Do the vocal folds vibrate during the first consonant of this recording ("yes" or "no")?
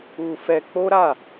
no